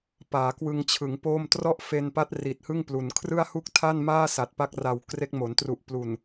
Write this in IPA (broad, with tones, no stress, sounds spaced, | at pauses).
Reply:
p aː˩˦ k w ɯ˧ ŋ t͡ɕʰ ɯ˩˦ ŋ p oː˥˩ m t r ɔ˥˩ ʔ f e˧ n p a˦˥ t̚ r i˨˩ t̚ h ɯ˥˩ ŋ p l u˨˩ n kʰ r ɯ˥˩ a̯ h u˥˩ k̚ tʰ a˥˩ n m aː˥˩ s a˨˩ t̚ p a˦˥ k̚ r a˨˩ w k r e˦˥ k̚ m o˩˦ n t r u˨˩ ʔ p l u˨˩ n